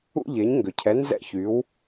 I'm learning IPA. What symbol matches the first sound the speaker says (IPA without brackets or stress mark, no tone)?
ṵ